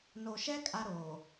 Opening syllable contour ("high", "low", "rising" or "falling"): low